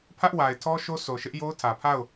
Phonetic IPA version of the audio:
pʰ ä˦ ʔ w a˨ ɪ̯ tʰ ɔ˦ ʃ o˦ s o˨ ʃ ɪ˦ ʔ j o˦ ʊ̯ tʰ ä˨ pʰ a˦˨ ʊ̯

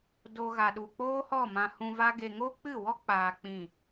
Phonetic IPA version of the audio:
d o˦ ɣ a˧ ɗ u˧ k͡p oː˦ h ɔ˦˨ m ã˧ h ũ˧ v a˦ ɡ e˧ ŋ o˦ k͡p ɨ˦˨ w ɔ˦ k͡p aː˧ k͡p ĩ˦˨

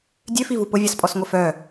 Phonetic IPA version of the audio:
dʲ ø f i v u p ʊ vʲ a s pʼ ɔ s ŋʷ ɛ f œ

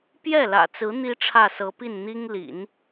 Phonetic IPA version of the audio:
p j ɛ˥˩ l ä̰˨˩ t͡s ɹ̩˧˥ n̪ i˥ ʈ͡ʂʰ ä˥˩ s ɤ˧˥ p i˥˩ n n̪ i˥ ŋ l ḭ˨˩˦ n

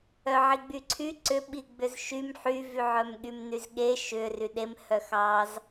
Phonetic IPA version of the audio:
œ ʕ i ɡ͡b y ǀʰ y ǀ ʏ ɓ i ɡ͡b ʏ z ʃ y m ħ y v y ʕ œ m ɠ y m n y z ɠ e ʃ ʏ r y ɗ e m h œ x ɑ z

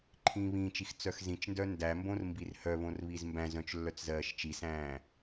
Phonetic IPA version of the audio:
ǃʰ ĩː β ĩː t͡ʃ i x t͡s œ x z ĩ t͡ʃ n d œ n d æ m b õ r m b i r h œ β õ r β i z m b æ̃ z œ̃ t͡ʃ lː œ t͡s z ɜː ʃ t͡ʃ i s æ̃ː

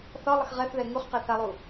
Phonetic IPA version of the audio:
θ ɒ lˠ ə x ʁ ɛ θ ð ɛ ŋ u χ q ɛ θ a lˠ u

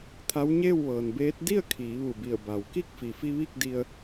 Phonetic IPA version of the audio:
t̪ʰ a˧˥ w ɲ eː˥˨ w ʋ ɤː˩ n b eː˧˥ t̚ d i˥˨ ə̯ kʰ iː˩˧ ʋ u˧˩ b i˧˩ ə̯ b a˩ w k i˥˨ k̚ f i˩ f i˧ ʋ i˥˨ k̚ d i˧ ə̯

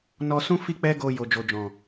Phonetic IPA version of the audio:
n ɔ˧ s ũ˦ f i˦ k͡p ɛ˦ ɡ o˧ j o˨ d͡ʒ o˨ d͡ʒ ɔ̃˨

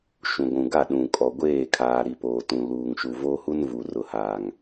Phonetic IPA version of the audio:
ʃ ũ˨ ɡʷ ũ˨ ɡ a˦˨ ɗ ũ˨ kʼ ɔ˨ ɡʷ eː˦˨ kʰ aː˨ ɾ i˨ p oː˨ t ũ˨ l uː˨ ŋ ʃ u˨ v o˦ h u˦ n v u˨ r ʊ˨ h aː˨ ŋ

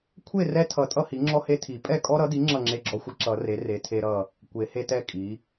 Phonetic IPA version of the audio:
kʷʰ e˥˨ r ɛ˦ tʰ ʌ˨˩˦ tʼ ʌ˦ h i˩˥ ŋ͡ǁ ɔ˦ h e˦ tʰ i˨˩˦ pʼ ɛ˥˨ kʼ ɔ˦ ɾ ʌ˩˥ d i˩˥ ŋ͡ǁ ʌ˥˨ ŋ͡ǁ e˦ ɡ͡ǁ ɔ˦ xʷ ʌ˦ ǁ ʌ˨˩˦ r e˩˥ r e˩˥ tʰ e˦ ɾ ʌ˥˨ | kʷ e˨˩˦ h e˦ t ɛ˥˨ kʼ i˩˥

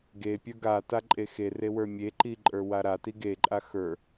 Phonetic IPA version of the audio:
ɡ e pʲ ə˞ ɡ a t a ǃʼ e x e r e w ə˞ mʲ e ǃ i ǃʼ ə˞ w a ɾ a t i ɡ e ǃʼ a x ə˞

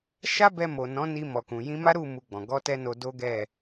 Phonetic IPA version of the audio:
ʃ a˦ b ɛ˧ m o˨ n ɔ̃˨˦ n i˧ m ɔ˨ k ũ˨ j ĩ˧ m a˦ ɾ u˦˨ m u˧ ɡ͡b ɔ̃˨ ɡ ɔ˧ t ɛ˧ n o˧ d o˦ ɡ ɛ˦˨

